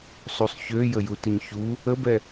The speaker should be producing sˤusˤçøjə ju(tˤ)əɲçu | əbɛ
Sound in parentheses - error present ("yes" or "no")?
yes